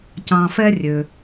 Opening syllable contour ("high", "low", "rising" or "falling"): low